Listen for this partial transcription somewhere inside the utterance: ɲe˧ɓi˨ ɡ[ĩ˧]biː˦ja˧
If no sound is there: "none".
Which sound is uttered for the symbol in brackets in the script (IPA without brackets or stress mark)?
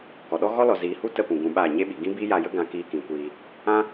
ĩ˦